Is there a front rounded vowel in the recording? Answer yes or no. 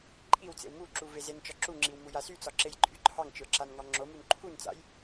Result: yes